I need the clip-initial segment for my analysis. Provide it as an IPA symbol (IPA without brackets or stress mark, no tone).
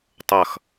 tˤ